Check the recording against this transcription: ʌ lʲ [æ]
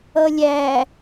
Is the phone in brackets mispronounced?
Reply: no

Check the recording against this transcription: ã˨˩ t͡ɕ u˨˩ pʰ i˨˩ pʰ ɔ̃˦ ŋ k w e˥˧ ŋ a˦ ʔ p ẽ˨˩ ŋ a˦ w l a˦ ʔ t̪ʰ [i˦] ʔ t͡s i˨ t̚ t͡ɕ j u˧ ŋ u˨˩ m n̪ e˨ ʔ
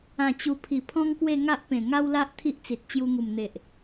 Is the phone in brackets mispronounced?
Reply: no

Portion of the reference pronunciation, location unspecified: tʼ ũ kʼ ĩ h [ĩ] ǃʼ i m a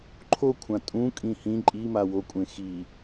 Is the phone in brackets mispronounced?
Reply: no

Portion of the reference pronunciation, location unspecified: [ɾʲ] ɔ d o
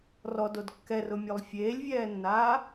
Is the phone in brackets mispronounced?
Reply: yes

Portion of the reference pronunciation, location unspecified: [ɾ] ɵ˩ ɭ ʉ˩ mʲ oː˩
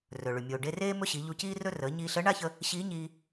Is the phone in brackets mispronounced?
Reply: yes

